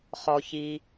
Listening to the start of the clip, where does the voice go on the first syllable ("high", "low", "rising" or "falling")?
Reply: low